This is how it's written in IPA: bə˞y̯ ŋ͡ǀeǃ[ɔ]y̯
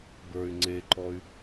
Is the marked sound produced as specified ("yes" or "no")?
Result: yes